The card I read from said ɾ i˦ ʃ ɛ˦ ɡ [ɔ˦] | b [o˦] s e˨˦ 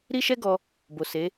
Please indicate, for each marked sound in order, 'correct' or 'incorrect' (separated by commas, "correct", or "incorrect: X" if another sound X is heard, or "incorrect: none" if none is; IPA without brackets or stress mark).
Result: incorrect: ɔ˧, incorrect: o˨